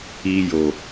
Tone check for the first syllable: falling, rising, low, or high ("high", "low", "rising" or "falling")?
high